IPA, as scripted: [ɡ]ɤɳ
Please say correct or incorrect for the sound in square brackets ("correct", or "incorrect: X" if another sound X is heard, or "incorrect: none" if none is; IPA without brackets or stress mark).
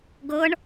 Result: correct